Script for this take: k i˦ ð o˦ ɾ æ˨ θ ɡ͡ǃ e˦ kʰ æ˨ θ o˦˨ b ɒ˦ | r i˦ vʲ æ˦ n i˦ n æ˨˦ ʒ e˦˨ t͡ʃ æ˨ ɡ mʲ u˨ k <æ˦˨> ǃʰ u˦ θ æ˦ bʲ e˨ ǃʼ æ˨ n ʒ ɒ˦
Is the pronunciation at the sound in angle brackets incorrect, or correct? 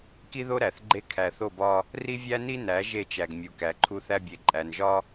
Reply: incorrect: æ˨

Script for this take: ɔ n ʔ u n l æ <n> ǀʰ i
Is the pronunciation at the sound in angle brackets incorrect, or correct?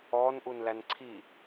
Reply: correct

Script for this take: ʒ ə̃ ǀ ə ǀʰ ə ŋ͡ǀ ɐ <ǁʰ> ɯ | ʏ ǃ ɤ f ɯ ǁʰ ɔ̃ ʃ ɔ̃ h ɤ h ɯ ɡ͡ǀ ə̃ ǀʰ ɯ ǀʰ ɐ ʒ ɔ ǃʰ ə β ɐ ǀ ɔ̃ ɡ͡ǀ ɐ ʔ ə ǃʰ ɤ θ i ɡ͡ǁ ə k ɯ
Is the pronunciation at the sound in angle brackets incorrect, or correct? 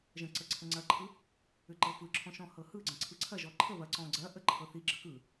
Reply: incorrect: ǃʰ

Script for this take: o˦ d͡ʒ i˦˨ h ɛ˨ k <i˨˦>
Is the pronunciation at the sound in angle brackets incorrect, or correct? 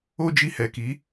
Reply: correct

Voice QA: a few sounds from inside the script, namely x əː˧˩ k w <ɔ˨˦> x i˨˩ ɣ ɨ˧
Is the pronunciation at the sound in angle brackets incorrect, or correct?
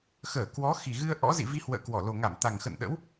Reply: correct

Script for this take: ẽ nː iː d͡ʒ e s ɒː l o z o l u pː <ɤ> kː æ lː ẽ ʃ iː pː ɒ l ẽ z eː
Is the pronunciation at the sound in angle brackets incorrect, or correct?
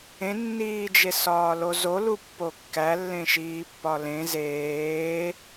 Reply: incorrect: o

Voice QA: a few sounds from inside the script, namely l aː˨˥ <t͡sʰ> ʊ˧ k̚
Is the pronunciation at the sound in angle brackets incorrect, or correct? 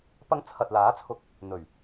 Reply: correct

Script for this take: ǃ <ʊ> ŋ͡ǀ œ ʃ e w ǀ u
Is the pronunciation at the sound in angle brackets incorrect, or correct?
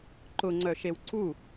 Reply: correct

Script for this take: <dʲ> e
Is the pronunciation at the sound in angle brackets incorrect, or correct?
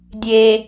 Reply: correct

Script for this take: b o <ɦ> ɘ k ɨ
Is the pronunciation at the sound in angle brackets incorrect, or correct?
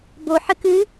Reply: incorrect: ħ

